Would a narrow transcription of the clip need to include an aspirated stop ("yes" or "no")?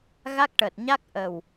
no